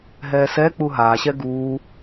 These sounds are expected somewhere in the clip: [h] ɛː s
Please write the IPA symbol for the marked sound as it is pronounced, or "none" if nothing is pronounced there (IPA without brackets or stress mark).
ɦ